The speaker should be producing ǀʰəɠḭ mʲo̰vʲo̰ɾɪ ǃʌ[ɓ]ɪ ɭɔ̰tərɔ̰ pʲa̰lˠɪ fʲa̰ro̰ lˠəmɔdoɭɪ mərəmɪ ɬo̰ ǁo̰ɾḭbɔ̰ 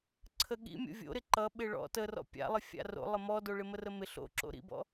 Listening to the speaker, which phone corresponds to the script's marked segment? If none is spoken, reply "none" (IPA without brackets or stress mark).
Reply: ɓ